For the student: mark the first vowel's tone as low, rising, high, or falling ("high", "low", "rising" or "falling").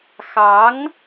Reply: rising